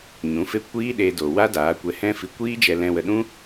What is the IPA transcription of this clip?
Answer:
ɲ ũ˨˦ f e˦ kʷ iː˦ ɗ e˧ d o˨ w a˦ d aː˨˦ kʷ ɛ˧ h ɛ̃˦ f i˧ kʷ iː˦ d͡ʒ ɛ˧ l ɛ̃˧ w ə˧ ɗ ũ˦

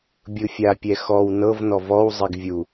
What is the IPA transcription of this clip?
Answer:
bʲ ɯ fʲ a pʲ ɛ x ɔ w n ɤ v n ɔ v ɔ w zˤ i ɡ vʲ u

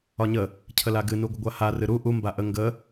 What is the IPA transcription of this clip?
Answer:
ɒ ɲ ə | cʰ ə l a ɡ ɨ n u ɡʷ ə ɡʷ a h a r ɨ ɾ u ʔ u m b a ʔ ə ŋ ɡ ə

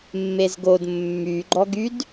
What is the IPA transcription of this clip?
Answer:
mː e z ɡ o d mː y ɡ͡ǃ ɔ ɡ y d

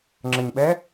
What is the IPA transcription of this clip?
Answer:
ŋ͡ǁ ə ɲ ɓ ɛ

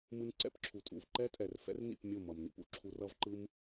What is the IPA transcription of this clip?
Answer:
m ɯ˧ n ǀ ɛ̰˦ p ǁʰ u˨ tʼ ṵ˨ v ǃ ɛ˦ tʼ ɛ˨ r f ɛ̰˦ r n ḭ˦˨ p mʲ o˦˨ m ʌ˨ m n ḭ˧ p ṵ˨ ǁʰ u˧ r ʌ˦ v ǃ ɯ˦ m

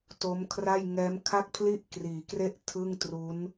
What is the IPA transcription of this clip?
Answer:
t o˦˥ m kʰ r a˥˩ j ŋ ɛː˦˥ m kʰ a˥˩ k̚ pʰ l i˥˩ ʔ k r iː˩˦ k r e˥˩ ʔ tʰ ɯ˥˩ ŋ t r u˦˥ n

